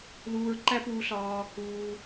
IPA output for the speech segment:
luː˧ɹǃæ˥puː˧ɬɒː˧ | uː˧

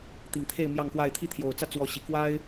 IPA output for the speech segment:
t̪i˨˩ŋt̪ʰe˥˧ɪ̯ mjɑ˥˧ŋxwa˥˧ɪ̯ t̪ʰi˥˩t̪ʰjo˨˩ʊ̯t͡sä˥˩ t͡swɔ˧˥ ɕi˨˩ kwa˥ɪ̯

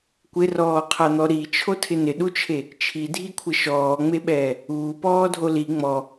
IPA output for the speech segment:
kʷɪrɔːqʰan̪ɔ ɾit͡ʃʰotʰɪ nɪɗut͡ʃʰe | t͡ʃʰidʱikʷʰɪ ʃɔːŋ͡meɓɛː | uːpɔːdʱo li ŋ͡mɔ

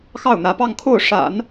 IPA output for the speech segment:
xɑ˥˩ʊ̯n̪ä˧˥pɑ˥˧ŋkʰo˥˩ʊ̯ ʂa̰˨˩˦n

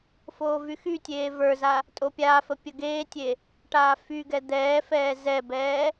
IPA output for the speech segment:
foːvyxytʲeː və˞za | tʼopʲaːfə pʲəɡeːtʲe | ʈaːfyɡɛ d̪ɛːfɛː zɛbɛː

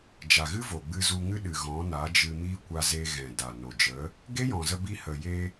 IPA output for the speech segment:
d͡ʒa˨ɣɨ˦vo˨ ɡ͡bɨ˧zu˧ ŋɨ˦ɗɨ˨ɣɔ̃˨˦ na˨˦d͡ʒɨ˧mi˦ kʷa˧ze˧ɣɛ̃˨da˨ no˨d͡ʒə˨˦ | ɡe˦jɔ̃˨zə˧bi˧ hə˨je˧

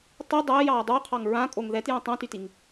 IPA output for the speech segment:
tˤi dˤɛːjɑː dˤoqʰɑŋ ɹãkʼoŋ ðɛtjõ tˤãtytiŋ

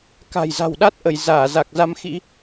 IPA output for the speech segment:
ka̤˨˩jza̤˨˩wɗa˦˥t̚ʔə˧˩j zaː˧˩ za˨˩k̚za˧mxḭ˧˥

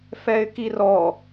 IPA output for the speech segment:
fɛɪ̯kirɔ

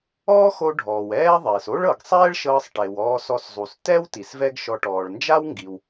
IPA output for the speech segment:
ɔː˥xo˧ ɖʱɔː˩wɛː˥ðˤeː˩s o˥ɭɤ˩ɡ sˤɛː˥ɭʃɤː˧sˤʈe˩w ɔː˧sɔ˧szˤu˩s tɛ˥w ti˩svɛ˥ɡʃɔ˧ ʈɔː˩ɭnd͡ʒa˥w ŋɡi˩w

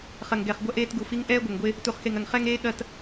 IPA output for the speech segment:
χɐ˨ŋɡɛ˨χ ɡʷɐ˦ʔeː˦tɡu˨fi˦ŋ ʔɛː˦ɡʷɐ˨ŋɡʷe˦ | tu˨χxe˨ŋɐ˨ŋ χɛ˦ŋ eː˦ɠɐ˦˨t

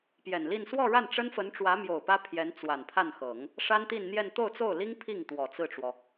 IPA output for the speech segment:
pjɛ˨˩nli˥˧n swɔ˥˧ɻa˥˩n ʈ͡ʂə˥nfə˧˥n ʈ͡ʂwä˧˥mjo˨˩ʊ̯ pä˥pʰjɛ˧˥nt͡swa˨˩n pʰa˥˩nxɤ˨˩˦ŋ | ʂa˥nt̪i˥˧nn̪jɛ˥˧n t̪o˥˧ʊ̯t͡so˥˩ʊ̯li˥ŋ pʰi˥˩ŋt̪wɔ˨˩ t͡sɹ̩˥˩ʈ͡ʂwɔ˩

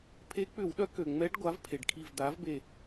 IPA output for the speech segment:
pʰe˧˥k͡pʏ˧˩˧wɗœ˧˥ kø˩ŋ͡mɛ˧˥ɖ ɡʷa˩˥vpʰe˩ɖ kʰi˧˩vd̪a˩˥vbe˧˩

